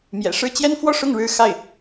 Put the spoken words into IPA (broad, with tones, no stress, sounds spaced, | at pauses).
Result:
m j ɛ̰˨˩ ʂ ɻ̩˥˩ t͡ɕ j ɛ˥ n f w ɔ˥˧ ʂ ʊ˥˩ ŋ ɻ ɻ̩˥ x a˥˩ ɪ̯